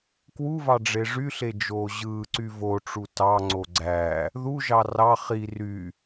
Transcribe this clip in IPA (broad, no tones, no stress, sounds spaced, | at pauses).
k w u v ɑ ɖ͡ʐ e ʐ y ɬ e d͡ʒ oː ʑ ɯː ǀ y v o ʈ͡ʂ u t ɑ ŋ͡ǀ o ɡ͡ǀ æ | ð u ʒ ɑ r ɑ χ i r y